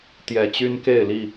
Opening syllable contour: low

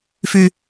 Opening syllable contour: low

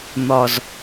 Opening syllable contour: low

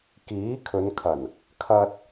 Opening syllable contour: rising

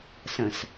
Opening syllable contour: low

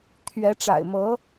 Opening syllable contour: rising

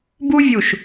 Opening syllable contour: high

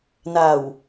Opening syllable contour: low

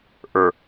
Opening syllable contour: low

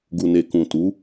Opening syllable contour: low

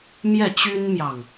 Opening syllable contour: falling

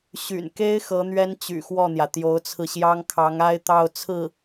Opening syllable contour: low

